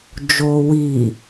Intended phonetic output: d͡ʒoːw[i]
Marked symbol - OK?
yes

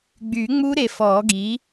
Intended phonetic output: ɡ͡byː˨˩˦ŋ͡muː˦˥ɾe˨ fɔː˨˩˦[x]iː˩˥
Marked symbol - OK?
no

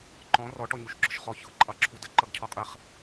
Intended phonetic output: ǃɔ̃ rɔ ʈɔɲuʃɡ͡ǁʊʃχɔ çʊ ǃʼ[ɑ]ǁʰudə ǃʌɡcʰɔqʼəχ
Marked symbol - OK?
yes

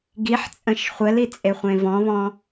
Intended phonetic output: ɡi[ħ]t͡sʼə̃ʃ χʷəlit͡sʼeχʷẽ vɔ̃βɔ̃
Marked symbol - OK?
yes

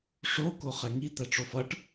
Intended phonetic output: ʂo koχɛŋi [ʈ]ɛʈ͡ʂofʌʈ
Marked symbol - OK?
no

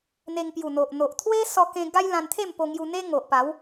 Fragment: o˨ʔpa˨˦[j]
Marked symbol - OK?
no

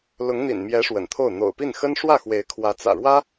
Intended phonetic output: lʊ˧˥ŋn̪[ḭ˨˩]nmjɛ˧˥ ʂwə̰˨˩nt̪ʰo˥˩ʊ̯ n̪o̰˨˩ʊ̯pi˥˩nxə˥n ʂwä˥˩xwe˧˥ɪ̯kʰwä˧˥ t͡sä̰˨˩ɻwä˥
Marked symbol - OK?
yes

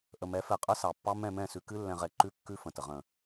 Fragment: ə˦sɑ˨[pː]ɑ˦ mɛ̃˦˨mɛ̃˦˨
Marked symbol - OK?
yes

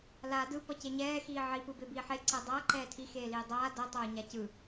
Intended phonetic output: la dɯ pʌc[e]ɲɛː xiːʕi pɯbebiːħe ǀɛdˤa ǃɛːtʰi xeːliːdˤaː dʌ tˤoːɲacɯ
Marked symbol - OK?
yes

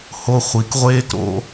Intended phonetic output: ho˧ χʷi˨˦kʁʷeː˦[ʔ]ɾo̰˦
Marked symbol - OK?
no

